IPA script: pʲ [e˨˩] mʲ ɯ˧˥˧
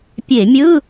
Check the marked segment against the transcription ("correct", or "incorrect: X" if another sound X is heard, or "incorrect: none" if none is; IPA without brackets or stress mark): incorrect: e˧˩˧